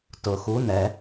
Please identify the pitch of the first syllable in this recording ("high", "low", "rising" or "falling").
low